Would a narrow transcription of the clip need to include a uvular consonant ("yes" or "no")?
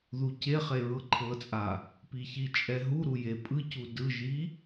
yes